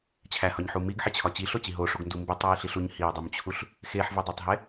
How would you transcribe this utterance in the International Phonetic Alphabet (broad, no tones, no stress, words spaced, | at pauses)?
t͡ɕʰæhɒɲħu miɡħit͡ɕʰɒ t͡ɕiɬot͡ɕi ɦoʂuɡndu mbitˤwiɬiɬuɲ hiʊ̯dˤumt͡ɕʰuɬ | xeħvedˤotˤɦe